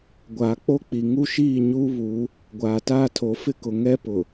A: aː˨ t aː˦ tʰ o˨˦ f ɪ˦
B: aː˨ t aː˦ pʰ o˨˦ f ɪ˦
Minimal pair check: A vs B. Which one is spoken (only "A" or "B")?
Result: A